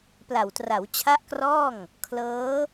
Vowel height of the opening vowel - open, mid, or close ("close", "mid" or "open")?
open